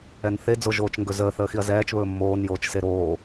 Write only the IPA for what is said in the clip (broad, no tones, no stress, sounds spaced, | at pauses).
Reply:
ɛ n θ e d͡z o ʒ oː t͡ʃ ŋ ɡ ɵ z əː θ əː x i ɐ̯ z ɛː t͡ʃ β ɵː mː oː n j oː t͡ʃ s e ɾ oː